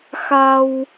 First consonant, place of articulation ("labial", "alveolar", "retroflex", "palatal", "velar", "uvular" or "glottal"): velar